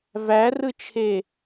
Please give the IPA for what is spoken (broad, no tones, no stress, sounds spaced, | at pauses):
v æ r ɯ t͡ʃʰ e